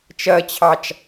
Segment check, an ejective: absent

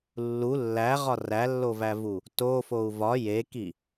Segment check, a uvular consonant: present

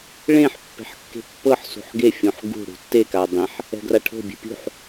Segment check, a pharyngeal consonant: present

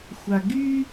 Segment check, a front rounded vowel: present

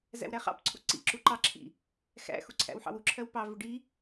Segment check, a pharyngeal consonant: present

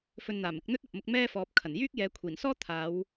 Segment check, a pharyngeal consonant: absent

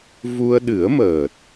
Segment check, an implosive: present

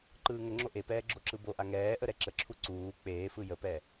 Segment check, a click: present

